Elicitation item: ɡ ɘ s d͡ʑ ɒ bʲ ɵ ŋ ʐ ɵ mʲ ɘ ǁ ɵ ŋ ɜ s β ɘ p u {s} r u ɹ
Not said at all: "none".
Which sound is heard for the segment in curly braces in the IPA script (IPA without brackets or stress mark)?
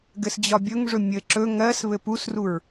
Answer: s